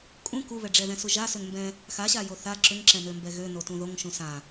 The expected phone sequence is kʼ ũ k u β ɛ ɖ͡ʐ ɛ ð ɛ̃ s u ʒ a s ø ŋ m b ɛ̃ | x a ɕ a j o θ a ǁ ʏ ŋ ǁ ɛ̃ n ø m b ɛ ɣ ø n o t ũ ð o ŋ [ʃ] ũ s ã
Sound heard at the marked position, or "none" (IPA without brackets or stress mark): ʃ